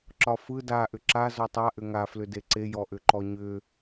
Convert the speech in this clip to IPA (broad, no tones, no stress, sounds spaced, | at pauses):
ǁ ɒ f ɯ d a ʔ ʏ ǁ a z ɔ tˤ a ʔ ʏ ŋ a f l ʏ d e ǀ e j ɔ ʔ ʏ ǃ ɔ ɲ ʏ